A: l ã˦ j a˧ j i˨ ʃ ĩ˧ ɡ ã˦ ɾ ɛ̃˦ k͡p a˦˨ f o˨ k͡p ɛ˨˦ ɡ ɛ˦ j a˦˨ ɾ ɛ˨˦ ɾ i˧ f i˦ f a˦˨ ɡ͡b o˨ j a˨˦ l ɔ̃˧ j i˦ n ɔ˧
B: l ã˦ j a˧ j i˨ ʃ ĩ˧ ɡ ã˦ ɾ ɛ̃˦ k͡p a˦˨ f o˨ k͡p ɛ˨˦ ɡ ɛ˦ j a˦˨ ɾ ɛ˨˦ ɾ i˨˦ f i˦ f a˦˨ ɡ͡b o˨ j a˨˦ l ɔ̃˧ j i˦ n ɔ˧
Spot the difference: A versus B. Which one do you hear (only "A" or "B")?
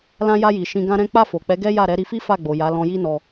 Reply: A